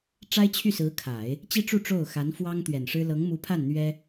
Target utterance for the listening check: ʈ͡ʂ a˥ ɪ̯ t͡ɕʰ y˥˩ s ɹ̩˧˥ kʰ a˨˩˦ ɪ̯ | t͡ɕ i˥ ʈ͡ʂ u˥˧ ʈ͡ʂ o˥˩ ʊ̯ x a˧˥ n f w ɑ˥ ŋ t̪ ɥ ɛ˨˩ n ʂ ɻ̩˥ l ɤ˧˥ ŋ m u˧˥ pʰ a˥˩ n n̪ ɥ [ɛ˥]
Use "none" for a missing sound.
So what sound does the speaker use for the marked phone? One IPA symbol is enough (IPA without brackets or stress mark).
ɛ˥